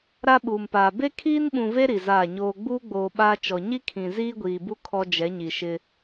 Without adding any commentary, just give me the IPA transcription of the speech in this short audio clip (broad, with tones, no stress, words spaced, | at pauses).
ɾa˦ɓuː˨mpaː˨ be˦kʰiː˦nɓũ˨ve˦ ɾi˨zaː˦˨ɲoː˦ ɡ͡buː˦ɡ͡boː˨ ɓaː˦t͡ʃɔ˨ ɲi˦kʰĩ˨ ziː˦ɡʷiː˨bu˦ kʰɔ˦d͡ʒɛ˨˦ɲi˨ ʃɪ˦